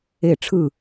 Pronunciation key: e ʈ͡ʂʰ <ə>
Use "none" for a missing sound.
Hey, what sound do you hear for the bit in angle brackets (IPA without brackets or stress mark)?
ɯ